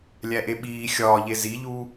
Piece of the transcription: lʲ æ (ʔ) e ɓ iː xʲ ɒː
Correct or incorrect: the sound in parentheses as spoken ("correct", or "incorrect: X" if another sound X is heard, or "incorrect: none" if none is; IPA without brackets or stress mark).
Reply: correct